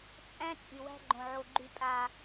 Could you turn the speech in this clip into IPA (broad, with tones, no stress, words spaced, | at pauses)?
t͡sʼæ̃˦ t͡sʼy˨wæ̤˦ɡ͡ǃõ˨ʕo˨ ɡ͡ǃy˨pʼa˨